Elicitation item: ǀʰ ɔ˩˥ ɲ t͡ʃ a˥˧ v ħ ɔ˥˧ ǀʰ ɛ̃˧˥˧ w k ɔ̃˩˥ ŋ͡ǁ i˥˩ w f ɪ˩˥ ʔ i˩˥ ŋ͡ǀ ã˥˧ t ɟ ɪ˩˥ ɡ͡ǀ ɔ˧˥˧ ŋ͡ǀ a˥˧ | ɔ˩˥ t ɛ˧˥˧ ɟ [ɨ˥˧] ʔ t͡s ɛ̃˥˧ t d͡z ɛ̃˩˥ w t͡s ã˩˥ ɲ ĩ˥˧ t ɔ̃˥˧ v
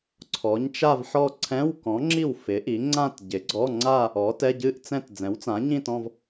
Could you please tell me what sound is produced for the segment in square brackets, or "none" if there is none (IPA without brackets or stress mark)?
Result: ɨ˥˧